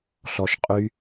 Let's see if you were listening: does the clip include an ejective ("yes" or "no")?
yes